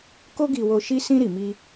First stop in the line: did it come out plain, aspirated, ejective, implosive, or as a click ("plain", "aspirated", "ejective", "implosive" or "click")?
plain